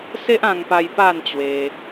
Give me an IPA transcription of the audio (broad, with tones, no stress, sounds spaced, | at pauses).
s e˦ ʔ ã˧ ŋ p a˧ j p a˥˧ n t͡ɕ w e˧